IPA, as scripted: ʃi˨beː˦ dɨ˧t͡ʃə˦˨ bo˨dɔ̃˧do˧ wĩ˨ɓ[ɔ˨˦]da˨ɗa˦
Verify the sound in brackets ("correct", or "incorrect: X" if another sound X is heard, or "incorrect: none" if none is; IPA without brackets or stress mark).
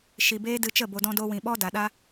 incorrect: ɔ˦